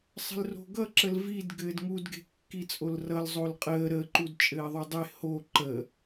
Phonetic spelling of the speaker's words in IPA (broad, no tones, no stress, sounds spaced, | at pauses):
sˤ ə̤ l r o̤ ɡ ʌ ǁ ə l v i d ɡ ɘː d ŋ u d ɡ e̤ kː i t͡sʼ o l r ʌ l zˤ o l qʼ əː ɾ ə ǃ u d t͡ʃʼ ɘː ðˤ u dˤ e h o ǃ ə